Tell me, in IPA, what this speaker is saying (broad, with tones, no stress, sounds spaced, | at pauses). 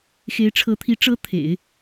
x e˧˥ ɪ̯ ʈ͡ʂʰ ɤ˧˥ t̪ʰ i˧˥ ʈ͡ʂ ɤ˧˥ t̪ʰ ḛ˨˩˦ ɪ̯